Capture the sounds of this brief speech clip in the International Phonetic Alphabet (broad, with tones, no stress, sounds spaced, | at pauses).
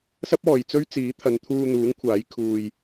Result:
s ɐ˥ p̚ ɔː˨ j t͡s ɵ˥ ɥ t͡s iː˨˥ t̪ʰ ɐ˨˧ n t̪ʰ uː˧ n̪ uː˨˥ ŋ kʷʰ aː˨˥ j kʰ uː˧ j